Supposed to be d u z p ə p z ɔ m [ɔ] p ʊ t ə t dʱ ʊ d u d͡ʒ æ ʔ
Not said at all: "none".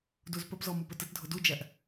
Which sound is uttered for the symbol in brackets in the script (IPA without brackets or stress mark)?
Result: o